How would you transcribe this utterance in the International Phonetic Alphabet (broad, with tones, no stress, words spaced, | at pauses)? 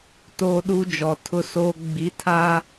toː˦ɗu˦d͡ʒɔ˨ tʰʊ˦soː˦ ɡ͡bi˨˦tʰaː˦